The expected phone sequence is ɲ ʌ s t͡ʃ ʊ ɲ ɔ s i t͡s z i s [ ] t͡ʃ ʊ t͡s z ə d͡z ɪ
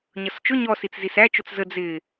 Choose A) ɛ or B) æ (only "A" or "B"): B